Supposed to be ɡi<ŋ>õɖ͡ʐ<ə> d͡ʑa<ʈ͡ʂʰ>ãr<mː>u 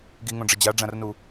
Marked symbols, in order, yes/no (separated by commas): yes, yes, no, no